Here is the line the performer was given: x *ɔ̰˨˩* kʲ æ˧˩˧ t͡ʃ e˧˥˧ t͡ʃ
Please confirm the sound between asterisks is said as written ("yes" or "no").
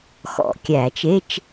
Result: yes